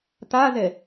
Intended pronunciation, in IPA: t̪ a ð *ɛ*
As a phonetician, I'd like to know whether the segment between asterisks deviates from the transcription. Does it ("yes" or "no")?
no